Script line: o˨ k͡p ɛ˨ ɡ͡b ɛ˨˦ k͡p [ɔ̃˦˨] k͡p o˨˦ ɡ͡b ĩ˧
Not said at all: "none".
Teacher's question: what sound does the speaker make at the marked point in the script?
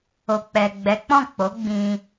ɔ̃˦˨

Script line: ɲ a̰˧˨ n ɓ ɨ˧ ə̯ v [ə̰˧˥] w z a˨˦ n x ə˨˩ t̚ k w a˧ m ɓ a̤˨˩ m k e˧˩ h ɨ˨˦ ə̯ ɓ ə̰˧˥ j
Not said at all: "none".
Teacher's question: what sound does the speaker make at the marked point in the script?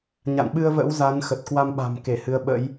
ə̰˧˥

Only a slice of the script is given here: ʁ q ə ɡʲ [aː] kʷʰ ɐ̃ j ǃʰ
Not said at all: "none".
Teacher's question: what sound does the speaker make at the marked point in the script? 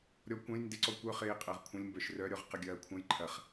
ɐː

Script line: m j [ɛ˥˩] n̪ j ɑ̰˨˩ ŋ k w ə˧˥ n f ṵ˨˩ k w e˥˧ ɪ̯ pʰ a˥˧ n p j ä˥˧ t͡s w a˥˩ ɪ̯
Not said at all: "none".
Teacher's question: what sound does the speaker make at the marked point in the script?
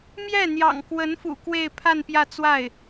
ɛ˥˩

